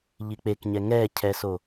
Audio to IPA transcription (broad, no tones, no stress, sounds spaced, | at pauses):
ʎ i k͡p e k ɲ ɛ ŋ ɛ cʰ ɛ s o